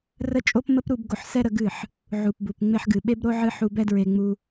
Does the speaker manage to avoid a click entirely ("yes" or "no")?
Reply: yes